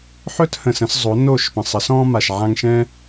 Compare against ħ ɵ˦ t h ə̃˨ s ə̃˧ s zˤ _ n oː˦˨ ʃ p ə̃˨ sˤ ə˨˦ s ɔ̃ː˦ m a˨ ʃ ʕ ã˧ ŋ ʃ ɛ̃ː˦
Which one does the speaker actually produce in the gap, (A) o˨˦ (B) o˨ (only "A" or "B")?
A